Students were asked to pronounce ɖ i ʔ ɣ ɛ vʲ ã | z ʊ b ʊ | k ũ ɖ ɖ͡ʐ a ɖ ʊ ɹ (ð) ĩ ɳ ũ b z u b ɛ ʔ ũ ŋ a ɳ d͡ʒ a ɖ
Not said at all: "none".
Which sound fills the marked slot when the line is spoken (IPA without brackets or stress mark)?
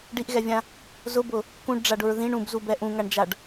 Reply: ð